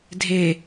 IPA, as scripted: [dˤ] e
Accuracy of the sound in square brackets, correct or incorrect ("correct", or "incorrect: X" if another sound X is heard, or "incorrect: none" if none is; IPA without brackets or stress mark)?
incorrect: dʱ